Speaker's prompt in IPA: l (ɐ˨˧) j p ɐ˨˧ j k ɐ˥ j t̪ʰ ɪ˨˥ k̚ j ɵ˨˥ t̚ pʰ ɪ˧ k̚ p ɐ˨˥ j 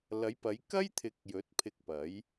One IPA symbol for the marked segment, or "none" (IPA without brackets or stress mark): ɐ˨˧